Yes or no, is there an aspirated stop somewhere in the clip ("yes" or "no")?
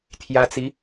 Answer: yes